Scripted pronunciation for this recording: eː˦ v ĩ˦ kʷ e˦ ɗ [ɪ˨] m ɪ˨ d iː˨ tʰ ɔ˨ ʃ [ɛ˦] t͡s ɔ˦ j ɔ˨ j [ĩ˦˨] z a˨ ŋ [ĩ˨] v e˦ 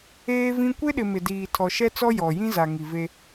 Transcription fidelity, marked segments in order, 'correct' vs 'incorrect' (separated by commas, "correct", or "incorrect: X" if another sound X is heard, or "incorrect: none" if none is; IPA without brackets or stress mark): correct, correct, incorrect: ĩ˦, incorrect: i˨